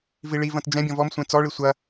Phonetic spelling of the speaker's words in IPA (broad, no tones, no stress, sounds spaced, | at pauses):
v i ɭ i v ɐ̃ t d͡ʒ ɛ̃ bʲ ɔ̃ v ɔ m sʷ ẽ t͡s ɔ ɭ i sʷ ɐ